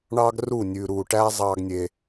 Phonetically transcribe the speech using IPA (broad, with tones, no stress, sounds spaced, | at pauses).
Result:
ɳ ɑː˦ ɡ r u˦˨ nʲ ʉː˨ ɾ uː˨ ʈ æː˦ zˤ ɑː˦ ɡ nʲ e˧